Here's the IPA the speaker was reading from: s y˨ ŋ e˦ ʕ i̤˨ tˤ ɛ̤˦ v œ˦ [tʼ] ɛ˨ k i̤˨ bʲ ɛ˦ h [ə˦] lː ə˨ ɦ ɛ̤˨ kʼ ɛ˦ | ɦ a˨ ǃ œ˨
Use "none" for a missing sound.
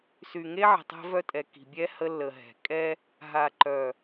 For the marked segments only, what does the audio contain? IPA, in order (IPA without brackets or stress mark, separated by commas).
tʼ, ə˦